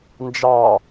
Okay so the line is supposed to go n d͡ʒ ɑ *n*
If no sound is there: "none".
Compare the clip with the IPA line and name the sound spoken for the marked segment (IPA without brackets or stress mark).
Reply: none